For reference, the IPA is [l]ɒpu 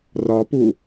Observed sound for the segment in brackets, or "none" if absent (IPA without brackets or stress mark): r